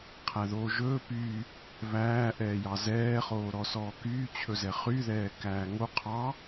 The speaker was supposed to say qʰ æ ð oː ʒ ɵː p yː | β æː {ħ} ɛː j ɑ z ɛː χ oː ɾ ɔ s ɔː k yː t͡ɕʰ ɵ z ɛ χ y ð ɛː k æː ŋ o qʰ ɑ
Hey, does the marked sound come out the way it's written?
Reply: no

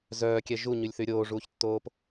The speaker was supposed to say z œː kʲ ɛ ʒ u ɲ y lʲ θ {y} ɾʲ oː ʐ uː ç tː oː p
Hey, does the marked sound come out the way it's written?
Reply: yes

